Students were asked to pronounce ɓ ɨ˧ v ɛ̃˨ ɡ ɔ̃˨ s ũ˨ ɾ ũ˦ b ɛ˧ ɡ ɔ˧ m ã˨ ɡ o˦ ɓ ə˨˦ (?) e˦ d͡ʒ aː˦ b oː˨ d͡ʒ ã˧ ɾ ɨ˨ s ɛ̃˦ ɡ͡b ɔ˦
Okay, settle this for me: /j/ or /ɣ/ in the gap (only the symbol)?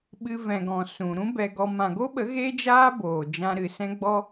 ɣ